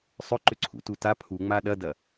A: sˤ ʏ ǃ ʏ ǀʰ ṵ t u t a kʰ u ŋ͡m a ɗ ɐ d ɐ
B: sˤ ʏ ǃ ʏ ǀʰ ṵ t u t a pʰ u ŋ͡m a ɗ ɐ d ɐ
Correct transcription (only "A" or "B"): B